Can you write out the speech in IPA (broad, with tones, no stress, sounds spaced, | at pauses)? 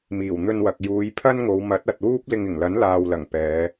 m iː˨˩ w n̪ ɵ˧ n w ɐ˨ k̚ j uː˨˧ j pʰ ɐ˥ n ŋ o˨˧ w m ɐ˨˥ t̚ ɐ˨ t̚ w uː˥ p̚ l ɪ˧ ŋ ɪ˨˩ ŋ l ɐ˨˥ n l aː˨ w l ɐ˨˩ ŋ p ɛː˨˧